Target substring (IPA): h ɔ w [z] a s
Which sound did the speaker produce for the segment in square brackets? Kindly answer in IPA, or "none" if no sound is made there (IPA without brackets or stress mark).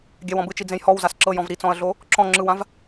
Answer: z